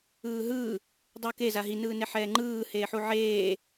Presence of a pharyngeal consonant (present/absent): present